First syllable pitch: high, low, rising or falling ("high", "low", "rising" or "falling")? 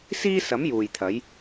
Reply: high